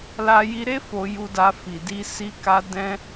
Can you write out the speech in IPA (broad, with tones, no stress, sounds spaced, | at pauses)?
l a˧ j i˧ ɾ e˦ f o˧ j u˧ d a˧ f i˨ d i˧ s i˦ k a˦ d ɛ̃˧